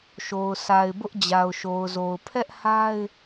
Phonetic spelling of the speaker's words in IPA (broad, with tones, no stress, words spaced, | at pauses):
ʃo˨ʊ̯sa˨ɪ̯bʊ˦ʔ d͡ʑa˨ʊ̯ʃo˨ʊ̯zo˨ʊ̯ pʰɛ˦ʔha˦ɪ̯